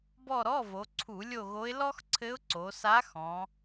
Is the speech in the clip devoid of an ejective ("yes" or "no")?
yes